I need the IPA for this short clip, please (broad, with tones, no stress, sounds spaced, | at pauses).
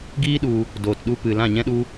ɡ iː˦ ɗ u˧ | d oː˨ t ɗ u˧ p ɨ˨ l ã˦˨ ɲ ɛ̃˦ ɗ u˦